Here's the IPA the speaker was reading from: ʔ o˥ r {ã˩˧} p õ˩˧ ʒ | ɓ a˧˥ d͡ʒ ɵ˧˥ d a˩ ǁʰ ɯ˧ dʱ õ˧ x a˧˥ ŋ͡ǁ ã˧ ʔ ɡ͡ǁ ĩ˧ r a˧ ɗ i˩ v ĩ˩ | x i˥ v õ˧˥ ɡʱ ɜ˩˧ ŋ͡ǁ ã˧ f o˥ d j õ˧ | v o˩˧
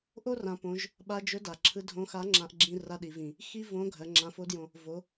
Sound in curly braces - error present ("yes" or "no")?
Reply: no